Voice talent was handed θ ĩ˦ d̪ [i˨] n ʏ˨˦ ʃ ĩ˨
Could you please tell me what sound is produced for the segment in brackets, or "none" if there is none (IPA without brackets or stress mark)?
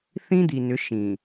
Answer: i˨